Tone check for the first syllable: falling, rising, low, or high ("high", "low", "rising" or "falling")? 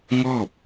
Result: falling